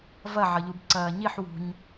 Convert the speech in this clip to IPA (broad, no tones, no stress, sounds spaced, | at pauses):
v ɐ ʕ ʌ ʎ u b ǀ ɐː ɲ i ħ w ṳ ɲ